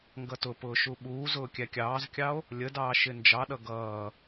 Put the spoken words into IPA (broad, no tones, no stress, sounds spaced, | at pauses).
ŋ ɡ ʌ t ʊ p ʊː ʃ u ɓ uː z ʊː kʲ æ kʲ ɑː z kʲ ɑ o̯ | lʲ ə d ɑː ʃ ɪ n d͡ʒ ɑ ɗ ʌ ɡ ʌː